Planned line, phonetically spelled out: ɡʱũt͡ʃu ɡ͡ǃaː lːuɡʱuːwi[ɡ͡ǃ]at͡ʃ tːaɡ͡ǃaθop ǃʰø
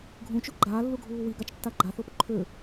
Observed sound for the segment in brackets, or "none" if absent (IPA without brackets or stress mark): ɡ